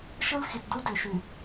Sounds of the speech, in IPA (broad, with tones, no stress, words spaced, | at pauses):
ʃɯ˦l xi˨t du˦dø˨ʃy˨